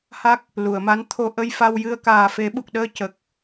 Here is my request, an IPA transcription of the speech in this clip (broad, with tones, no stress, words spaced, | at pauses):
ha˦˥k̚ | lu˨˩˨ə̯ma˧˥n t̪ʰo˧ ʔə˧jfa˧wjɨ˧ə̯ kaː˨˩fe˨˩˦ɓu˨˩k̚ɗəː˧ cə˨˩k̚